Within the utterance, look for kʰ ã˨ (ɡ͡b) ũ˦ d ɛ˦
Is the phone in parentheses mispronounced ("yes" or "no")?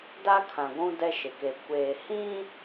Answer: yes